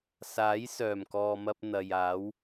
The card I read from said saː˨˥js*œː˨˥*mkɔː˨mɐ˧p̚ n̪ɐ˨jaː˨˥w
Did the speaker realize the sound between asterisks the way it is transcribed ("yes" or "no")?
no